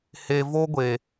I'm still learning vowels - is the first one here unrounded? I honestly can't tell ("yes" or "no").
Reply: yes